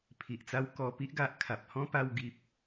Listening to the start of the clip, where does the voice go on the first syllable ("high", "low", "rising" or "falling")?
low